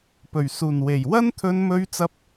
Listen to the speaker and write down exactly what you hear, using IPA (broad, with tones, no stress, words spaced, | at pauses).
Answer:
pɵ˨˩ɥsuː˨˩nwe˨˩j wɐ˥nt̪ʰɵ˧nmɵ˧ɥt͡sɐ˧p̚